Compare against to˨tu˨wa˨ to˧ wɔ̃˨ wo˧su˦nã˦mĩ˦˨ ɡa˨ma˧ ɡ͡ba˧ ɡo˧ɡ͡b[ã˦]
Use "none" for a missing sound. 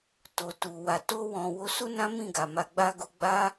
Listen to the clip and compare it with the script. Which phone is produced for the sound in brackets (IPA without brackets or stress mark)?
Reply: a˦